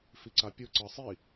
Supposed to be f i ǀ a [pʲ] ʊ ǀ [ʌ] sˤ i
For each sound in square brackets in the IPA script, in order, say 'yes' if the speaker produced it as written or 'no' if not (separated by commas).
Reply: yes, yes